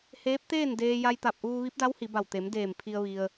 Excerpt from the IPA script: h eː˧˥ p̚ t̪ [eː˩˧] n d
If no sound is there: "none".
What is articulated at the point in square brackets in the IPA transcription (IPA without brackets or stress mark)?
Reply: eː˥˨